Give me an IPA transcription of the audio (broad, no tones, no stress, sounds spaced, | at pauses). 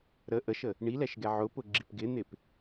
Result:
ɾ ə ʔ ə ʃ ə | ɳ i l ɛ ʃ ɡ ɛ ʕ ʊ p ʊ ɡ͡ǁ i p ɡ ɪ n̪ ɪ p